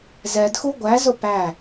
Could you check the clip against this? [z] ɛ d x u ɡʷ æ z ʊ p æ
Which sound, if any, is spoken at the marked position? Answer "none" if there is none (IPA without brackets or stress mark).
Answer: z